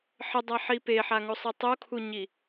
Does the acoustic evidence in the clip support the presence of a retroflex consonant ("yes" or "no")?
no